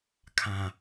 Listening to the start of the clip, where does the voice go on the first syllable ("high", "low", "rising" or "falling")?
low